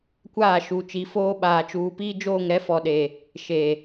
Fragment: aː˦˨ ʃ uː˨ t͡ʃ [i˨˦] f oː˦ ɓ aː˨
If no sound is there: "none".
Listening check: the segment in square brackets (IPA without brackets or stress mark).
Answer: i˨˦